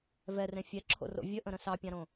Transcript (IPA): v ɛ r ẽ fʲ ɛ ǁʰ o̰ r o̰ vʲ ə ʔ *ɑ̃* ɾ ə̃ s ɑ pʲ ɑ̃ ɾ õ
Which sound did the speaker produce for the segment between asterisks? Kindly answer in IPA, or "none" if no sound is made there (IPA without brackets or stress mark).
ə̃